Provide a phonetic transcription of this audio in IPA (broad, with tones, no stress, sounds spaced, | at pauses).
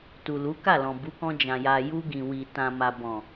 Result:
t u˨ l u˨˦ k a˦˨ l ɔ̃˨ b u˨˦ k ɔ̃˧ d͡ʒ ã˨ j a˨ j u˧ ɡ ĩ˨ w i˨ t ã˨ m a˨ b ɔ̃˨